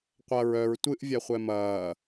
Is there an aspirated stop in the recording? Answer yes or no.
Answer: no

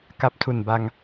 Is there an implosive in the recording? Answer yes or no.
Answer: no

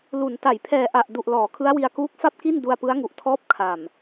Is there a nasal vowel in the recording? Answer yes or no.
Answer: no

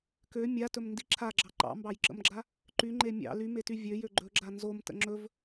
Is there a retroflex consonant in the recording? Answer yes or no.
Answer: no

